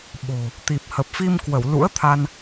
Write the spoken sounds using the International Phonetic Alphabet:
ɓ o̤˨˩ | t̪ i˨˩ p̚ h ə˨˩ p̚ f i˧ m k w ə˧˩ w l ṵ˧˥ ə̯ t̪ʰ a˧ n

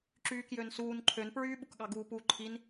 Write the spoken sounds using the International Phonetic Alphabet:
ǁ yː k j ø n s uː n ǃʰ ø n p ɹ yː ɓ u k ɠ ɑ ɡ uː p u ǃʰ i n

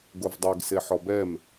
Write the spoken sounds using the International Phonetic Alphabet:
ɡ o v dˤ ɛ ɡ s e ħ ɔ b ɛ m

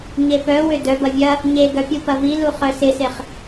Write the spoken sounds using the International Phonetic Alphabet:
ɲ e p œ w ø d œ b ɐ vʲ ɐ | ɲ e ɡ œ pʲ u p ɐ v i l u χ œ s ɪ s e χ

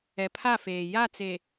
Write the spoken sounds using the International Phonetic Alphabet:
ɛ˨ pʰ a˦˨ f eː˨ j a˦˨ t͡s e˨

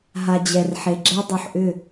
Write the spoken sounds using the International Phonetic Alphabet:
ɦ a˨ d͡ʑ ɛ˨ r ħ e˨ ɡ͡ǁ ɛ˦ dˤ u˨ ħ ʔ ʏ˦˨

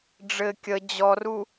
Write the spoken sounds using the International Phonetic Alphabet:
ɖ͡ʐ ɘ kʲ ə d͡ʑ ɔ r u

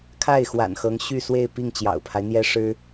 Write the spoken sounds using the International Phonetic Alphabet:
kʰ a˥˩ ɪ̯ x w a̰˨˩ n x ɤ˧˥ ŋ ɕ y˥˧ s w e˥˧ ɪ̯ p i˥˩ ŋ t͡ɕ j ɑ̰˨˩ ʊ̯ pʰ a˦ ɪ̯ n̪ j ɛ˥ ʂ ɻ̩˥

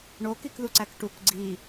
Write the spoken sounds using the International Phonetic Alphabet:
ɳ o k i k ð u ǀ æ k ʈ u k ɡ͡ǀ i

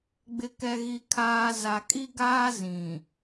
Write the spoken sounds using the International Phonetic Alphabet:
ɡ͡b ɪ˨ k ɛ˨ ɣ i˨ kʰ aː˨ z a˨ kʼ i˦ ɡ aː˦ z ĩ˨

